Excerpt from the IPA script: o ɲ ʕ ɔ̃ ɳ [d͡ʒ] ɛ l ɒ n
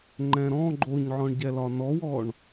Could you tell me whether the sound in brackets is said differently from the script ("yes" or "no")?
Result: yes